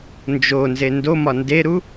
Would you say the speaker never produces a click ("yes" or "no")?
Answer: yes